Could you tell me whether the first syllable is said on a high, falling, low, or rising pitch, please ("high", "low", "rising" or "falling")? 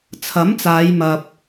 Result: rising